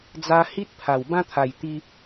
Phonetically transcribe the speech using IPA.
d͡za˧ hi˦t̚pʰa˨˩w bã˦t̪ʰa˨˩j t̪i˧

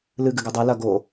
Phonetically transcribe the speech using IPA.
lɨ ɡɨɡɛdˤɛ lɐ ɡo

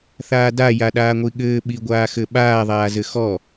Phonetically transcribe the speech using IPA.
θaːda jaɗaːŋʷiɠɘː ɓiɡʷaːxɘɓaː ðˤaːzɘxɔ

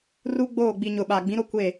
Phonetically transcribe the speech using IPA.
ru˦ɡ͡boː˦˨ ɡ͡bi˨ɲʊ˨ ɓaː˨ɡ͡bĩ˨˦ɾo˦ kʷe˦˨

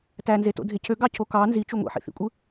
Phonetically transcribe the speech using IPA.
tænzeto̰dʱe cʰøɡɑcʰo kɑ nzit͡ʃu ŋʷḭħḭθḭkʷʼɯ

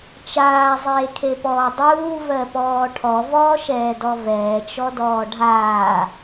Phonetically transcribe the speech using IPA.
t͡ʃaːzˤeːkʰepɔː dˤuːvɜpɔː ʈʰɔvɔːʃɛːdɔ vɛːt͡ʃɔdɔː ɖʱaː

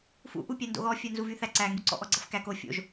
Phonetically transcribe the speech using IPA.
fṵʔu pʲændo̰ɣɔ fʲɜnzuvyθæ ǀæŋɡyǀɔ̰ ʔɔɡ͡ǀʌfkæk o fʲo̰ʒ

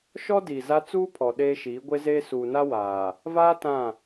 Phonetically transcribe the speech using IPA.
ʃɔ˦diː˨ za˦ t͡suː˦pʰɔ˨ ɗeː˦ʃiː˨˦ ɡʷe˦zeː˦ suː˨na˦ waː˨ | vaː˦ tã˦˨

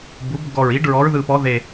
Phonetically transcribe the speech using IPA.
bu˩˧bɡɔ˨˩ɹi˩˧ɖ ɹɔ˩˧ɹðɯ˨˩pɔ˩˧ðe˨˩

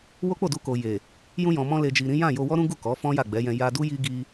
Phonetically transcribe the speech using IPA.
wo˦k͡po˦˨du˧ ko˨je˨ | jũ˧jɔ̃˨ mɔ̃˧le˨d͡ʒi˨ ɾĩ˨˦jã˦˨jo˧ wɔ˦ɾũ˦ɡu˦˨ kɔ˨˦fɔ̃˦ ja˦˨ɡ͡bɛ˨˦jɛ̃˧ ja˧du˦ ji˦ɡi˧

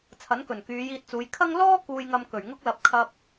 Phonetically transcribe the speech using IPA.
t͡sʰɐ˨˥nkɵ˨˩nkyː˨˧ jiː˧t̚t͡suː˨˧j kʰɐ˥ŋ lɔː˥ kuː˧jŋɐ˧mkɵ˨˩ɥŋʊ˥k̚ lɐ˨p̚kʰɐ˧p̚

